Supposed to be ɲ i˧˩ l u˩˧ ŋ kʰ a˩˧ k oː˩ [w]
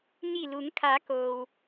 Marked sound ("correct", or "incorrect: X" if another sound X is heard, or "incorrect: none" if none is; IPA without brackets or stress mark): correct